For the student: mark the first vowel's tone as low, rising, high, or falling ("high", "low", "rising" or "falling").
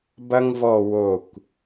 high